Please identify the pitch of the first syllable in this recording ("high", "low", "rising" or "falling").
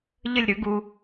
falling